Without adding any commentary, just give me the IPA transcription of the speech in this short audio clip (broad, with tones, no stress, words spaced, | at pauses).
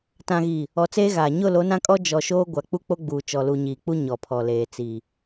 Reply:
tã˨ɣi˨ | ɔ˨t͡seː˦ɣaː˨ ɲʊ˦˨ lo˨˦nã˦kʼɔ˦ d͡ʒɔ˨ʃoː˦ ɡʷa˨k͡pu˦k͡po˦ɡ͡buː˨ t͡ʃɔ˨lu˨ɲiː˨k͡pu˦ ɲɔ˨pʰɔ˨leː˨ t͡si˨